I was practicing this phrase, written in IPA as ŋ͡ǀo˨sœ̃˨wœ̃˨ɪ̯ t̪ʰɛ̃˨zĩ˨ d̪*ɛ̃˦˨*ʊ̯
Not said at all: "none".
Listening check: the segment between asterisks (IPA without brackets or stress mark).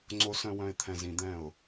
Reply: ɛ̃˦˨